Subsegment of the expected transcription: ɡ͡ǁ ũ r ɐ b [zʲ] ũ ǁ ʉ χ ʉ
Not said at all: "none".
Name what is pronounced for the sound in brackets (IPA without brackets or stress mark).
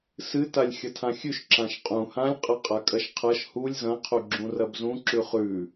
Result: z